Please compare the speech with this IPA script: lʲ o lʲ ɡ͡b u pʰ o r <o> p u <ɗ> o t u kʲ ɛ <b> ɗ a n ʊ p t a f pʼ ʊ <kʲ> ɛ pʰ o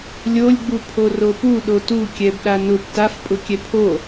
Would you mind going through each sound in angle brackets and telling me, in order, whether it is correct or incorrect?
correct, correct, correct, correct

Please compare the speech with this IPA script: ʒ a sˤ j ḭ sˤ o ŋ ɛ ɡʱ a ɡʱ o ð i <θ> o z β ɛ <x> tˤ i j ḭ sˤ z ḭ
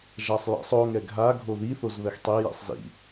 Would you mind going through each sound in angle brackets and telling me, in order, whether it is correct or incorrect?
correct, correct

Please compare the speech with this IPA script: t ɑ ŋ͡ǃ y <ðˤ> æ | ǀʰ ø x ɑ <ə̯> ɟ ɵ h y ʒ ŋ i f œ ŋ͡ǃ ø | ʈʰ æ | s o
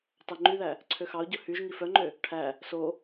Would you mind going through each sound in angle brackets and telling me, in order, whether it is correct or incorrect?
incorrect, incorrect

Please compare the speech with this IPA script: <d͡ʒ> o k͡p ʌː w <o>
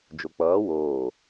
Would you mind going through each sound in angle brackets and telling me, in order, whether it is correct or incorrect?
correct, incorrect

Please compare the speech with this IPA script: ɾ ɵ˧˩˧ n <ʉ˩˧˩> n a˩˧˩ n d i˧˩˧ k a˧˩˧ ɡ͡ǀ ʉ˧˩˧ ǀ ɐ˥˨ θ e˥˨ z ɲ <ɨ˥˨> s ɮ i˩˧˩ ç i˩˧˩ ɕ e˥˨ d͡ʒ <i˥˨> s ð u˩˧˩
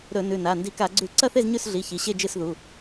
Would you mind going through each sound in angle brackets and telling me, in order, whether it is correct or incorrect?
correct, incorrect, incorrect

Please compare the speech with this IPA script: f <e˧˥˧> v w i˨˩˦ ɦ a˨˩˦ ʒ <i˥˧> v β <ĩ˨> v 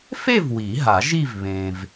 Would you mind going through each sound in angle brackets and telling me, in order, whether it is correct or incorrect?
incorrect, correct, incorrect

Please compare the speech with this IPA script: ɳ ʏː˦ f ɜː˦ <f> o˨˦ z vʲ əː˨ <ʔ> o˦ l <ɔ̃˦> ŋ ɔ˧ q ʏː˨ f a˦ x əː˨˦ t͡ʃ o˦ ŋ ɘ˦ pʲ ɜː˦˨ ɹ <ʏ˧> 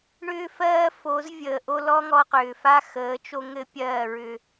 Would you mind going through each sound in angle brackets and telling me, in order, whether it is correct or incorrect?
correct, correct, incorrect, correct

